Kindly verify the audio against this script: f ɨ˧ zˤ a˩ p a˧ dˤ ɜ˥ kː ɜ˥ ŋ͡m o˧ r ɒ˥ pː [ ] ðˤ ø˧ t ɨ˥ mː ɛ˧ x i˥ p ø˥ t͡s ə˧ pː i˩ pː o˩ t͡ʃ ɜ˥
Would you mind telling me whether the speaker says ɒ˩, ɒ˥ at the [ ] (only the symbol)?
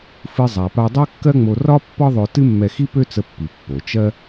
ɒ˥